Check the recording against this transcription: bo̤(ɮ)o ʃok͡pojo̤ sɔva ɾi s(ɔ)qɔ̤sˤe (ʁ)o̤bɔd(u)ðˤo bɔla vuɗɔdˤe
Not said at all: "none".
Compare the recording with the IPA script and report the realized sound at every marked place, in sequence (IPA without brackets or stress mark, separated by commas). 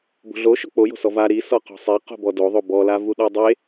ɮ, ɔ, q, o